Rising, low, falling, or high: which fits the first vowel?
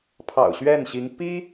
low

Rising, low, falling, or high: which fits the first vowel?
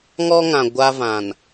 high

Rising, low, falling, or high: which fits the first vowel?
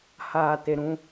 low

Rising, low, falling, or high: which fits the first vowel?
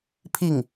falling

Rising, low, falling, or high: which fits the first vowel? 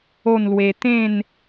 falling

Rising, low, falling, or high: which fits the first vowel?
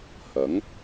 rising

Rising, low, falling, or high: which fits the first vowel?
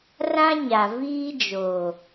high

